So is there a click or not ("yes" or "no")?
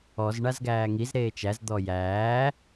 no